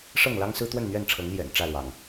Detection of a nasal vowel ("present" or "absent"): absent